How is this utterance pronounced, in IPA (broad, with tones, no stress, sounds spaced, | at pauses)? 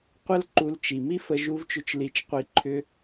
qʷ ə˦ l ǃ u˧ l t͡ʃ i˨ m i˦ f ə˧ ʒ u˧ v t͡ʃ ʏ˧ t͡ʃ l i˧ t͡ʃ qʷ i˧ ǃʰ ʏ˧